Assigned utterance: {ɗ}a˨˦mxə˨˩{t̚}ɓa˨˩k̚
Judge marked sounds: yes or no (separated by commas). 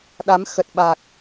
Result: yes, yes